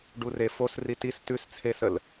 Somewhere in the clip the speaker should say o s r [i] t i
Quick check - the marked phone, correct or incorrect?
correct